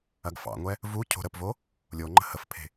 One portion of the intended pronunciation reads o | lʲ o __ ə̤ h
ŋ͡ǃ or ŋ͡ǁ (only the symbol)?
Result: ŋ͡ǃ